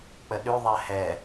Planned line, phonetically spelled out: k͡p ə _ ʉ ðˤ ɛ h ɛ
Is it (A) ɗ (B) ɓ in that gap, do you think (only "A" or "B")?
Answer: A